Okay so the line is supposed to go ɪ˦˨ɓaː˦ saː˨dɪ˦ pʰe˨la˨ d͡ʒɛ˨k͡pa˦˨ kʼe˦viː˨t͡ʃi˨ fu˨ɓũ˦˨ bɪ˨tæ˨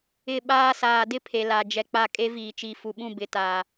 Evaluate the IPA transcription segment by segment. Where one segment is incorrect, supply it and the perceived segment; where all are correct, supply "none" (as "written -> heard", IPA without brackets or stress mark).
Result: æ˨ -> a˨